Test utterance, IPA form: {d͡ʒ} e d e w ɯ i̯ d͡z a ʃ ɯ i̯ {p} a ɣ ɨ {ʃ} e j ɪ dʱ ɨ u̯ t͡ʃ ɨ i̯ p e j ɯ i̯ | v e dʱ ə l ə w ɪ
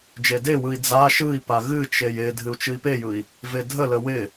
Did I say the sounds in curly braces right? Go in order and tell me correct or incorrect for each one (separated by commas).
correct, correct, incorrect